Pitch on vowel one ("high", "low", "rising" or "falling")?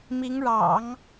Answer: rising